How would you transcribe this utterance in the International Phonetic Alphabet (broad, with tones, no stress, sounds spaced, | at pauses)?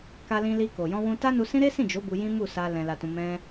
k a˧ l ĩ˧ l i˧ k o˨ j ɔ̃˧ w ũ˧ t a˦ n u˧ s ĩ˦ ɾ e˦ s ĩ˦˨ d͡ʒ o˨˦ b u˧ j ĩ˦ m u˦˨ s a˧ l ɛ̃˧ l a˧ t ũ˧ m ɛ̃˦